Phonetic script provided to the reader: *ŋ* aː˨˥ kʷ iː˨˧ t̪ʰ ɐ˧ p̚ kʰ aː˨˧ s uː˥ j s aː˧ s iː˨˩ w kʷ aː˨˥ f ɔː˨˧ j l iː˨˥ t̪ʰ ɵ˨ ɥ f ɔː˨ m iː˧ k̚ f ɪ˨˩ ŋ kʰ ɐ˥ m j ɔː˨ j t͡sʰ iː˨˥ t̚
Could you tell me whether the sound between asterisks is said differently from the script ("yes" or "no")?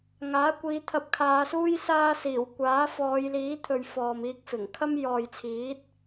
no